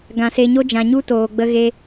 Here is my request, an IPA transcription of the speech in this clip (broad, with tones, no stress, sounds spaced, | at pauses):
ɡ ã˧ s e˧ ɲ o˦ d͡ʒ ã˧ ɲ u˦ t oː˧ ɡ͡b ə˦ ɣ e˦